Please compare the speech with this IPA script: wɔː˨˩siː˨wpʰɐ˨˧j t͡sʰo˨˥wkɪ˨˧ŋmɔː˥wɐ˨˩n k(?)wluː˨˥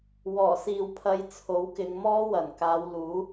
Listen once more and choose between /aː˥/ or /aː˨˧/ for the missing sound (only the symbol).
aː˨˧